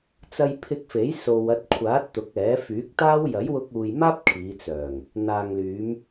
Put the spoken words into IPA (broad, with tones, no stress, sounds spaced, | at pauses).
t͡s ɐ˧ j pʰ ɪ˧ k̚ f e˨˥ j s o˨ w ɐ˧ t̚ kʷʰ aː˨˥ t̚ t̪ ʊ˨˥ k̚ ɛː˨˥ f yː˨˥ k̚ t̪ aː˥ w j ɐ˨˥ j w ʊ˧ k̚ uː˨ j m aː˥ p̚ kʰ iː˨˧ t͡s œː˨˩ ŋ | n̪ aː˨ ŋ l yː˨˧ m